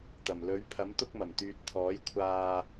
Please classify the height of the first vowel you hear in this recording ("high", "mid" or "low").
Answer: low